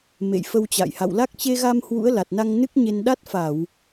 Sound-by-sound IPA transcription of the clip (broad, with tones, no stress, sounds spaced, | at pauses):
m ḛ˧˨ j f ə˧ w t͡ɕ a̰˧˨ j h a̰˧˨ w l a˦˥ k̚ t͡ɕ e˧ ɣ a˧ m h w ṵ˧˥ ə̯ l a˨˩ t̚ n a˧ ŋ n ɨ˦˥ k̚ ɲ e˧ n ɗ a˦˥ t̚ f a˧˩˨ w